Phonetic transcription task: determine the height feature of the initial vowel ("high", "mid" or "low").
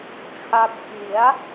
low